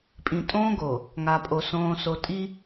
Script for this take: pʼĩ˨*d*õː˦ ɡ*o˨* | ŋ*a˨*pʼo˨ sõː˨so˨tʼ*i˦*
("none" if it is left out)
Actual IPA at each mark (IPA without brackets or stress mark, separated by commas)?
tʼ, o˨, a˨, i˦